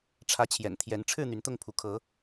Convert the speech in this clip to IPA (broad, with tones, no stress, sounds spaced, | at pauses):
ʈ͡ʂʰ ä˨˦ t͡ɕʰ j ɛ̰˨˩ n t̪ʰ j ɛ˨˦ n ʈ͡ʂʰ ɻ̩˥˨ n̪ y˨˦ n t̪ ʊ˥˨ ŋ pʰ u˨˦ kʰ ɤ˨˦